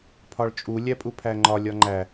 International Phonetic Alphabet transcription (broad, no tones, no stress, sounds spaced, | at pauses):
pʰ ɒ ɭ t͡ʃʼ u lʲ æ pʼ u pʰ æ ŋ͡ǃ ɒ lʲ ɒ ŋ͡ǃ æ